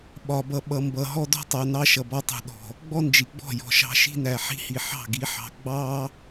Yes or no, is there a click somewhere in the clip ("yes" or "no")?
no